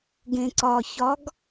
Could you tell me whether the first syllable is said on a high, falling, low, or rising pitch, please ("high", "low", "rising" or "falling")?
low